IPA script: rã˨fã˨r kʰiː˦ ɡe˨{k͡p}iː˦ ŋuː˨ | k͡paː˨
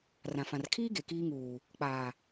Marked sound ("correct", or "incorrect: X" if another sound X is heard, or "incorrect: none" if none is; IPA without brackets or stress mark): incorrect: k